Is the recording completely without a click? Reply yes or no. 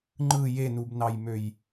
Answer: no